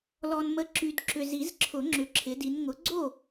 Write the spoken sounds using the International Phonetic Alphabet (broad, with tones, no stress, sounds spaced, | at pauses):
l ɔ˨ n m ə˨˦ ǁ y˨ d ǁ ʏ˨ z i˨˩˦ z ǁʰ ʊ˨˩˦ ŋ͡ǁ ʏ˨ ǁʰ ɪ˨˦ d i˨˦ n ŋ ʊ˨˦ ɡ͡ǀ o˥˨